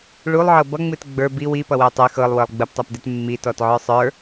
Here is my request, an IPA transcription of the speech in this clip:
ɭulˠʕɤ bʌŋ͡mɨt ɡ͡bə˞ bi wipʌwəj tˤɨ xɤlˠwɤlˠ ɡ͡bəptˤɛpdet mːitɔtʕə˞ sˤə˞

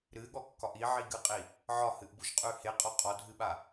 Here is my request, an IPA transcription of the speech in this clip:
ɾɨɠɔkːɒʔ iʕiɡɨqʼi | ʕɒhɨʔbuʃqʼʉ heqʼɔ qʼɔdʱɨɓa

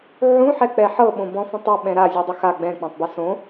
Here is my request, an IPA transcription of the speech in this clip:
ʕũħɛk͡pɛ ħɤɓõ bɔ̃fɔ̃tˤo ɓɛ̃ɾa zʲudˤɯxa ɡ͡bɛ̃k͡pãtˤbɯ sõ

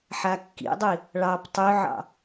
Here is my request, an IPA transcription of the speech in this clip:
ħakːḭdˤi | ɭɑp tˤøʕɑ̰

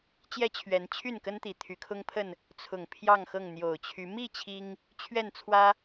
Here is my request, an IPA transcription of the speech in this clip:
t͡ɕjɛ˦t͡ɕʰɥɛ˨˦nt͡ɕʰy˥˨nkə˦n t̪i˨˩t̪ʰy˨˦kʰʊ˦ŋpʰə˥˨n | t͡sʰʊ˨˩ŋ pʰjɑ˥˨ŋxɤ˥˨ŋ n̪jo˨˩ʊ̯t͡ɕʰy˨˦ mi˥˨ t͡ɕʰi˦ŋ | t͡ɕʰɥɛ˥˨nt͡sʰwä˦

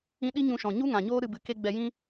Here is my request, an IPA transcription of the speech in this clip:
ĩ˦ ɗi˦ɲũ˧ʃɔ̃˨ ɲu˦ŋã˨ɲoː˦ ɾɨ˧bɨ˨ ke˦ɡ͡bɛ˧ jĩ˦

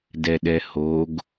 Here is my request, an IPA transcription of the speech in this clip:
dɛɗɛhoɡ

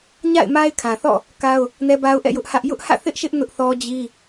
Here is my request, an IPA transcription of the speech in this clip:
ɲa̰˦˨ɪ̯ma˦ɪ̯kʰã˨θɔ̰˦˨ | ka˦ʊ̯ | nɛ˦ba˦ʊ̯ʔɛ̰˦˨ jʊ˦ʔhä˦ʔ jʊ˦ʔhä̰˦˨ θɪ˦ʔʃɪ˦ʔ nʊ˦ʔθɔ˦d͡ʑi˦

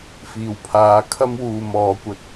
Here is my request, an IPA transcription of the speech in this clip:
fiː˨˩wpʰaː˨˥ kʰɐ˥mwuː˨ mɔː˨˥kʷɐ˧t̚

